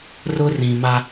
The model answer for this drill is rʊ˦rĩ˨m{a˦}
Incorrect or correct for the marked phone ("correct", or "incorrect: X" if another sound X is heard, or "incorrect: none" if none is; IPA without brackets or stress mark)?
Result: correct